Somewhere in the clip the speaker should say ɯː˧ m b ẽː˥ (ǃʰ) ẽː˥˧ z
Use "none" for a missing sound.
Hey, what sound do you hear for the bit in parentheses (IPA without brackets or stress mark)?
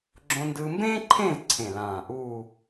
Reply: ǃʰ